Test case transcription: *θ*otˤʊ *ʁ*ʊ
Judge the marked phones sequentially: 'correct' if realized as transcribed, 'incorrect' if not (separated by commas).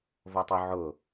incorrect, incorrect